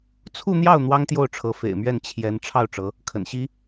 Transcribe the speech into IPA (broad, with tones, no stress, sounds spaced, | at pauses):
t͡sʰ u˥˧ n̪ j ɑ˥˩ ʊ̯ n̪ w ɑ˥ ŋ t̪ j o˥˩ ʊ̯ ʈ͡ʂʰ ɤ˧˥ f ḛ˨˩ ɪ̯ m ɥ ɛ˥˩ n t͡ɕʰ j ɛ˧˥ n ʈ͡ʂʰ ɑ˥˩ ʊ̯ ʈ͡ʂ ɤ˧˥ | kʰ ə̰˨˩ n ɕ i˥